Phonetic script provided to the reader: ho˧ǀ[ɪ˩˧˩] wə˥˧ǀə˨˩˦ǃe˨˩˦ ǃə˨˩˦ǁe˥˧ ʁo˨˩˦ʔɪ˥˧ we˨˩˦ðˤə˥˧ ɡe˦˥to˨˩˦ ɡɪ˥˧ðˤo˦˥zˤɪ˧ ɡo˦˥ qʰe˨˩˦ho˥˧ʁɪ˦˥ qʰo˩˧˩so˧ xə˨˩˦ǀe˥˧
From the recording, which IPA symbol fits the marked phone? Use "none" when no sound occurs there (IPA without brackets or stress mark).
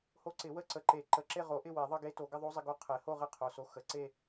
ɪ˨˩˦